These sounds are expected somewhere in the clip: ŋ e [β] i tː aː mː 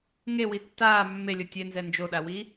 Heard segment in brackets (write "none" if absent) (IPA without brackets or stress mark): w